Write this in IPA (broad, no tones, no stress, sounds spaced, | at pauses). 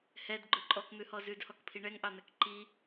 h ɛ d ɡ͡ǃ ɵ ǃʼ ɔ k n̪ ʉ h ɔ z ʉ d h ɔ k pʰ i ɳ ɛ ŋ ʔ ɑ n̪ ɛ k ǃ i